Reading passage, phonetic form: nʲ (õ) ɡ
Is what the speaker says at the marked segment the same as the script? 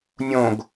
yes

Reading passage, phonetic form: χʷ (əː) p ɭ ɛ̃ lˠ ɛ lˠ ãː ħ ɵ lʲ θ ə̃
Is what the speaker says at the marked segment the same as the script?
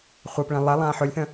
yes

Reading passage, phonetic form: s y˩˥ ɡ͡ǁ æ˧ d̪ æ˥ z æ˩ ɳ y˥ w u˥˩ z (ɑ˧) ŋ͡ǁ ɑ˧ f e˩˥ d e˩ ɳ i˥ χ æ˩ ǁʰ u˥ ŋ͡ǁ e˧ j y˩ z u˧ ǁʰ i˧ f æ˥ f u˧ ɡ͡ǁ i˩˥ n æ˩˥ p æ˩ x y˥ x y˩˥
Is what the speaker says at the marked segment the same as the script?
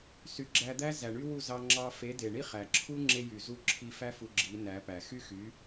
yes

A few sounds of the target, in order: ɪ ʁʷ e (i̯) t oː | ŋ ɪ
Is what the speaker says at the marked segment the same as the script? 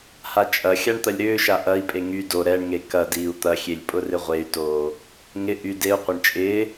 no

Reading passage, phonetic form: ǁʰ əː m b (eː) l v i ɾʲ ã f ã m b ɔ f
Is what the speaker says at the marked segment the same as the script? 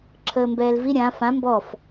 no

